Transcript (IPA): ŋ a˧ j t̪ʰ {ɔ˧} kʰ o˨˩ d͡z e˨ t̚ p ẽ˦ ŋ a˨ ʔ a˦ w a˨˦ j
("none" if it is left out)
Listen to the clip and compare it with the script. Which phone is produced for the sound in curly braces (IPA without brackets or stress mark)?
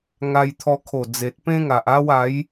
ɔ˧